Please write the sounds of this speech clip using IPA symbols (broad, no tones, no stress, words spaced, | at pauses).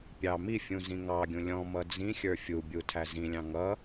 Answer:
pʲɑ mifʲũ zĩŋɑɡʲũ lʲɔ̃ mʌd͡zĩxʲə˞ fʲubʲu tʰæzĩlʲɑ̃ ŋʌ